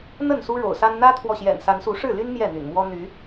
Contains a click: no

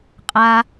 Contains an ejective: yes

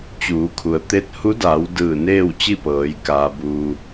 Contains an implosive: no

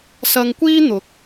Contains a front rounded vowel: no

